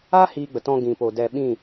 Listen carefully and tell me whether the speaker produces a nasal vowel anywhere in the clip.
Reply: yes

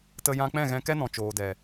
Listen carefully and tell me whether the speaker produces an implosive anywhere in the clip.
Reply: no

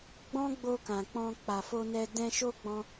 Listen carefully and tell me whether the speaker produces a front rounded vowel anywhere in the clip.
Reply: no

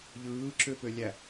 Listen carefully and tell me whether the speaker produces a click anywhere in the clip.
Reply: yes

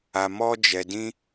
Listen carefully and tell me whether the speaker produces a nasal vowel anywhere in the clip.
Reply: yes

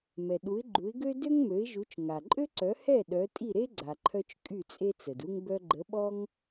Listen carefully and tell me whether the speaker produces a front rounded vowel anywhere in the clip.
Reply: yes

